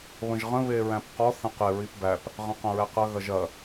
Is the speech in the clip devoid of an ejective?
yes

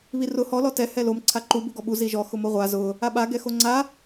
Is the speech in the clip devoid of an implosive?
no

